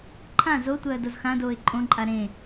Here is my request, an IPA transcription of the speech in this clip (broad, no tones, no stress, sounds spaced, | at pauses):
ǃʰ ã z o tʷ ɜː d o z x ã d oː ɪ̯ ǃʼ õ ǃʼ a ɾ ẽ